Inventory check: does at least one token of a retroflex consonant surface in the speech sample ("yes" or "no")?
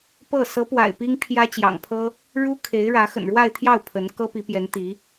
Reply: yes